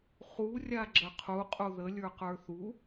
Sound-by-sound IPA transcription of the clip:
χ u rʲ a ɡ͡ǁ ə qʰ u qʼ u ð ə lʲ ə˞ q ə˞ θ u

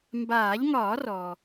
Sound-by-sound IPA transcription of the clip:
m b aː˨˩˦ ʎ ŋ ɒː˨˩˦ r ɔ˩

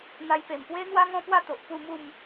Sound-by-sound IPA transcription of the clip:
n̪ a˧ j p e˨˩ m p w e˦ n̪ w a˦ ŋ ɔ̃˦ p w a˥˧ t̪ o˨ ʔ p u˥˧ m u˥˧ m

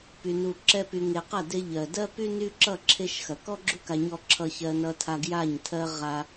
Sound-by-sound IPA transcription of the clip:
p y˨ n u˨ ǁ ɛ˧ p y˨ ŋ e˨ q ɐ˦˨ d e˧ ʎ ɜ˨ d ɜ˦ p y˦ n y˦ ǁ ʌ˦˨ ǁʰ e˦ ʃ x ɐ˨ k ɔ˦ ɡ͡ǁ u˦ k a˨ ɲ ɔ˧ ǁʰ ʌ˧ ç ɜ˧ n ʌ˧ tʰ a˧ ɡ j a˦˨ ɲ tʰ ɜ˦ ʁ a˧

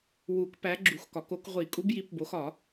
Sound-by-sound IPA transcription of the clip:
w u˨˩˦ k p æ˨˦ ɡ͡ǁ u˨˩˦ x k ɒ˨˩˦ k o˨˦ k ʁʷ i˨˩˦ kʼ u˨˦ b j i˨˦ p b o˨˦ x ɒ˨˩˦

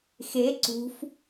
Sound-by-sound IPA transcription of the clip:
x e ǀ ṳ f

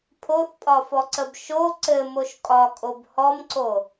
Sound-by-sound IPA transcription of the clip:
pʰ o θ pʼ ɒ f ɔ ǀ ə b ʃ o ǀ ɘ m o ʃ kʼ ɒ kʼ o b h ɔ m ǀ o

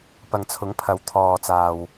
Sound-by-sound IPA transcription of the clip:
p ɐ˨ ŋ t͡sʰ ʊ˨˥ ŋ pʰ ɐ˨˥ w t̪ʰ ɔː˨ t͡s aː˨ w

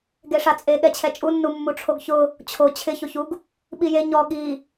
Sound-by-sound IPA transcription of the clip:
ɡ e ʂ a t͡sʼ e ɠ ɛ t͡ɕʰ ɛ t͡ʃʼ u nː u mː u ʈ͡ʂʰ o ɡ ç ʊ | t͡ɕʰ o t͡ɕʰ ɪ ç o ç u ɡ | ɓ i j e ɲ ɔ ɠ i

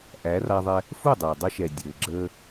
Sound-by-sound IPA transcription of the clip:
ʔ æ˨˦ r a˧ ðˤ ɛ˧ | f u˦˨ dˤ əː˨ dˤ ə˧ ʃ ɛ˨ dʲ ɘː˨ ɡ͡ǁ əː˦

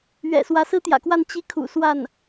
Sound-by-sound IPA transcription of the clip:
ɥ ɛ̰˨˩ s w ä˧˥ s ɹ̩˥ t̪ j ä̰˨˩ k w a˥˧ n t͡ɕ i˥˩ kʰ ṵ˨˩ s w a˥˩ n

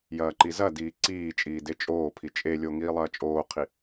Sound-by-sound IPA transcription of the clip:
j ɐː ǃ i z ɐ d iː ǀ iː t͡ʃʼ iː d e t͡ʃʼ oː pʰ i t͡ʃʼ e lʲ o ŋ iː lˠ ɐː t͡ʃʼ oː qʰ i

